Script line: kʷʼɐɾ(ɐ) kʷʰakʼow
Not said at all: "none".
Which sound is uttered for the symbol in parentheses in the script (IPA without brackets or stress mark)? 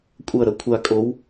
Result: ɐ